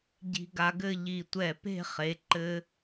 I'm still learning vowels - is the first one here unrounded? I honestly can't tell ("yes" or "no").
yes